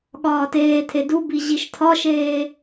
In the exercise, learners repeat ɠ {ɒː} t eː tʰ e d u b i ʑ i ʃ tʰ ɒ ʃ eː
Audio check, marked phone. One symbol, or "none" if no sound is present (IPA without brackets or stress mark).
ɒː